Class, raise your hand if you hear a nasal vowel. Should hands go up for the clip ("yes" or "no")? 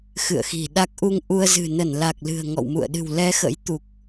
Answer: no